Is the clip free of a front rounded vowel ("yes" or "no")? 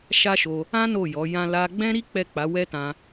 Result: yes